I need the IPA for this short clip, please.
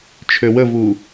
t͡ʃʰ ø w ə v u

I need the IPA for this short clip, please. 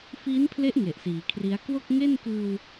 f i˦˥ n pʰ l e˦˥ ʔ ŋ e˨˩ ʔ s iː˩˦ kʰ r i˦˥ a̯ k w o˥˩ k̚ ŋ e˥˩ n k ɯː˧ w

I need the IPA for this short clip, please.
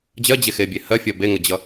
d͡ʑ ɜ d͡ʑ e x e bʲ e h ɜ fʲ ɜ b e ŋ ə d͡ʑ ʌ

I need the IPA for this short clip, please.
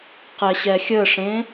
q ɛ ɕ ɛ xʲ ə ʂ ẽ

